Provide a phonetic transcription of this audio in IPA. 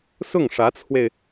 s ʊ˥˩ ŋ ʂ ä˧˥ t͡sʰ w e˧ ɪ̯

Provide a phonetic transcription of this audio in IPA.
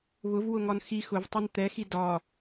β ʊ v w ʊ ŋ ɒ n x i x ʊ v tˤ ɛ n t̪ ɛ x i d ɒ

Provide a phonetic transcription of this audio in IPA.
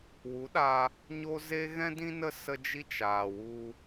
w u˨˦ ɗ a˧ | ɲ o˦ z e˦ ɣ ɛ̃˦ d ĩ˦ n ə˦ s ə˧ d͡ʒ i˧ t͡ʃ aː˨ w u˧

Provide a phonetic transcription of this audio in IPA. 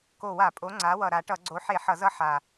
k o˨˩ w a˧˩˧ pʼ o˩˧ ŋ͡ǀ a˩˥ w ʌ˨˩ ɾ a˧˩˧ ʈ ʌ˧˩˧ ɡ͡ǀ o˩˥ ħ e˧˩˧ ħ ʌ˧˩˧ z ʌ˦˥ ħ a˨˩

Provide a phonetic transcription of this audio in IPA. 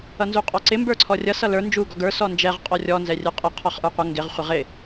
ʌ n z u qʼ ɔ ǀ ɪ m b ə˞ ǀʰ ɔ rʲ ʌ s ʌ l ə˞ n d͡ʒ u ɡ ɔ ɡ ə˞ s ɔ n d͡ʒ ɛ ʁ qʼ ɔ rʲ ɔ n z ɛ rʲ ə˞ qʼ ɪ qʰ ɔ χ ʔ ə˞ qʷ ʌ ŋ ɡ ɪ ʁ χʷ ɪ ʁ ɪ

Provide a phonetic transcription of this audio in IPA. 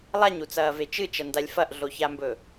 lˠ a ɲ u t͡s ɐː v e t͡ʃ ɨ t͡ʃ ɐ n d a lʲ f ɐ ʔ ɮ o ç a m b ɵ

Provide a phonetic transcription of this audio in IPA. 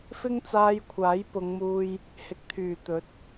f ɪ˥ ŋ t͡s aː˧ j kʷʰ aː˨˥ j p ʊ˨˧ ŋ m uː˧ j | h ɪ˨ k̚ t̪ʰ yː˨˩ t̪ ɵ˨˥ t̚

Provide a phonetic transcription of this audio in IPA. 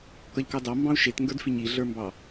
k ʌ ʎ k ɑ d ɑ m b ɑ̃ u̯ ʃ e t ŋ ɡ ə˞ d f i ɲ i ɮ ə˞ m b ɑ

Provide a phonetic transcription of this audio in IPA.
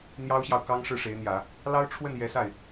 n̪ j ɑ˥ ʊ̯ ɕ j ɑ˨ ʊ̯ k ɑ˥ ŋ ʂ ɻ̩˥˩ ʂ e˧˥ ɪ̯ n̪ j ä˨˩˦ | l ɑ˥ ʊ̯ ʈ͡ʂʰ w ə˥˩ n j ɛ˧˥ s a˥˩ ɪ̯

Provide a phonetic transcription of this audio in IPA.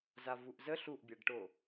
z a v u ʔ z ə ɬ u ʔ bʲ a ɖ ʈ o

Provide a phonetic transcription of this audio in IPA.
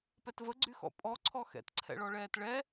p ɛ t v ə ɡ͡ǀ y x ɔ̰ pʼ ɔ ǀʰ ɔ x ɛ̰ t ǀʰ ɛ̰ ɭ ɔ ɭ ɛː t ɭ ɛ

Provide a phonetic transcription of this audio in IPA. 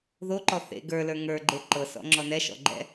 ð o ǃ ɔ θ ḛ ɡ ə˞ l ə˞ ŋ ə˞ ɡ͡ǃ e ǃ ɤ s ɔ̰ ŋ͡ǁ ɔ n ɛ ʃ ɔ̰ ɡ͡ǃ ɛ̰

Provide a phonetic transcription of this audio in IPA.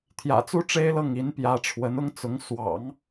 t̪ʰ j ä̰˨˩ t͡s u˥ ʈ͡ʂ e˥ ɪ̯ l ɤ˥˩ ŋ i˧˥ n p j ä˧˥ ʈ͡ʂʰ w ə˧˥ n ʊ˥ ŋ t͡s ʊ˧˥ ŋ s w ɑ̰˨˩˦ ŋ

